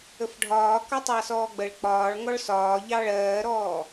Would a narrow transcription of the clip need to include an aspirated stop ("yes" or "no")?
no